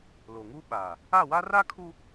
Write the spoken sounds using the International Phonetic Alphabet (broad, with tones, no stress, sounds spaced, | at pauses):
l o˨ ŋ u˦ ɓ aː˨ | a˦˨ w a˦ r a˦ kʰ u˦